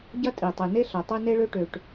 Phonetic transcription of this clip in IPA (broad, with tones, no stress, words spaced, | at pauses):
ɟɐ˥tʼi˩tˤi˩ne˥ ɬɐ˩tˤø˥ ne˥ɭø˥ʈø˩ʈ